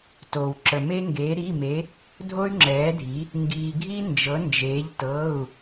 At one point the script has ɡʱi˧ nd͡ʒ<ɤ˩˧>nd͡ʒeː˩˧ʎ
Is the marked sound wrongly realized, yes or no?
no